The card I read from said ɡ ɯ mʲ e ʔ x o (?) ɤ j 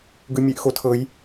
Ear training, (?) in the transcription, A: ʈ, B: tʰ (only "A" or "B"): B